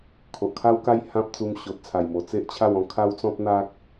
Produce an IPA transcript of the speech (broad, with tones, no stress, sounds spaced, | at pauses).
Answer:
kʰ o˨ ʔ kʰ a˦ w k a˦ j h ã˦ p̚ t͡s u˧ m ɕ o˨ t̚ t͡sʰ a˨˩ j m o˨˩ t͡s e˦ ʔ t͡ɕʰ a˥˧ w ɔ̃˧ kʰ a˦ w t͡s ɔ̃˦ p̚ n̪ a˦ k̚